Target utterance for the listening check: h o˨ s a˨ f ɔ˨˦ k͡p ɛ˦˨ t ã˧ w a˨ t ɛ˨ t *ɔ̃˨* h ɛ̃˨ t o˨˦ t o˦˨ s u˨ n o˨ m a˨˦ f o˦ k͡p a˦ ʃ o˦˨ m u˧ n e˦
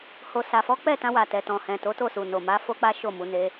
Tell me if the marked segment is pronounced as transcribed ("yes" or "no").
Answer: yes